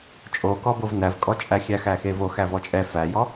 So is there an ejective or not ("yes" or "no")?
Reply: yes